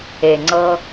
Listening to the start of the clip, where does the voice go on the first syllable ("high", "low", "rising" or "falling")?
low